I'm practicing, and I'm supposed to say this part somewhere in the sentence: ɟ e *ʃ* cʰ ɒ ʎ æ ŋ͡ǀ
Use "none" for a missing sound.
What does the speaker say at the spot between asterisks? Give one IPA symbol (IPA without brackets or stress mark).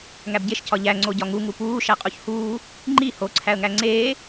ʃ